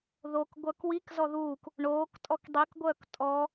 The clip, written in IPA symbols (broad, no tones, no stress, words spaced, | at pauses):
ðokɡʷœk wik zɔðuːk | ɳoːk tʼɔkdˤikɡʷœːk tʼɔ